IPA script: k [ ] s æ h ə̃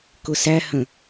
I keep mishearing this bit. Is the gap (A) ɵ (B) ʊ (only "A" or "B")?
B